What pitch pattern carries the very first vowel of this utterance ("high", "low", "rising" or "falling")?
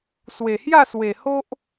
low